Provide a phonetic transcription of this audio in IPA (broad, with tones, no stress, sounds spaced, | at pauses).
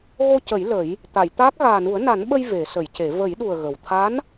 ɣ o˧ c ə˨˩˦ j l ə˨˩˦ j | t̪ a˨˩˨ j t̪ aː˦˥ k̚ ɣ aː˨˩ n u˨˩˦ ə̯ n a˨˩˦ n ɓ ə˧ j v e˨˩˦ s ə˨˩˦ j c e˨˩˦ v ə˨˩˦ j ɗ u˨˩ ə̯ ɣ ə˨˩ w t̪ʰ a˧˥ n